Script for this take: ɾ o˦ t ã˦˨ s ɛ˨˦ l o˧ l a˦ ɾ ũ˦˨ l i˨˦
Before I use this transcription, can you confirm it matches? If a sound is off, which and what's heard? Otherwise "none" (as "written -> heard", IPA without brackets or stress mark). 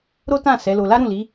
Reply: none